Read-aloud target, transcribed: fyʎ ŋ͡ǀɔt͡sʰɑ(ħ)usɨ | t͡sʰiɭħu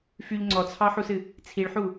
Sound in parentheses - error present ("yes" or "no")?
no